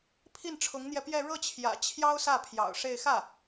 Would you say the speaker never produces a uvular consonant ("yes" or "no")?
yes